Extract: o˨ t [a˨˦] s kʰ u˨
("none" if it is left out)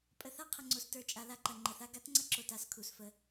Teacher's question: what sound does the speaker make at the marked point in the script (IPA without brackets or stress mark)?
a˨